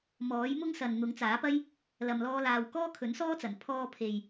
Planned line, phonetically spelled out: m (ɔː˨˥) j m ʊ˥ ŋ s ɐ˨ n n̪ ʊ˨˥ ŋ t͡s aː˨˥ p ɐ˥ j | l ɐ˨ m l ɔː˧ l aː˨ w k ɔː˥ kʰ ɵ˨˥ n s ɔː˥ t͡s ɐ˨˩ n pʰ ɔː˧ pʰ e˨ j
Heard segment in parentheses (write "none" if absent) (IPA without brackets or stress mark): ɔː˨˥